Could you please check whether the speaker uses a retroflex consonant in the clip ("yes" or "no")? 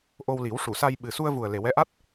yes